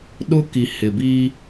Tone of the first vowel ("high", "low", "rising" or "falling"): high